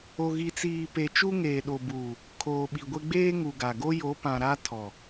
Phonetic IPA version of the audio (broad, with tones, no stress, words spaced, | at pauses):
o˨ɣi˨t͡siː˨ pe˨t͡ʃu˦ ŋeː˨ɗo˨buː˨ | kʰoː˨ɓi˨ɡʷe˦ ɡ͡beː˦ŋu˨ɡa˨ ɡo˦jo˨˦pã˨ ɾa˦ tʰɔ˨